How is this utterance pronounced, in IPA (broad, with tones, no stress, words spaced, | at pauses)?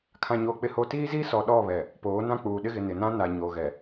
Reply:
kʰã˦ɲoː˦k͡pɪ˦hoː˦ tiː˦ziː˦sɔ˨ɗɔ˦˨ βɛ˨ | poː˨˦nã˦k͡puː˨ ɗɪ˦ ɣɪ˨ nɪ˨nã˦ na˨ɲoː˨ɣɛ˨